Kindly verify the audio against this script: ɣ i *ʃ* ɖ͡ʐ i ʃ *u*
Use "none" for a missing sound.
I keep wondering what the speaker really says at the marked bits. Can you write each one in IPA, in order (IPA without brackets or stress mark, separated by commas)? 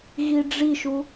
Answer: none, u